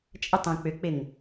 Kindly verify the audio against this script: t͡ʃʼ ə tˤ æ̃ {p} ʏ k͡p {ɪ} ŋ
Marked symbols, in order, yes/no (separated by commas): no, yes